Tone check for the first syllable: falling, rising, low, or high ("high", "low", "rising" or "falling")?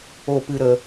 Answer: falling